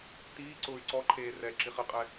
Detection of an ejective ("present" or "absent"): present